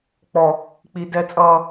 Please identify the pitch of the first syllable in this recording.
high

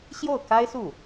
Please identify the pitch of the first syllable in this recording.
falling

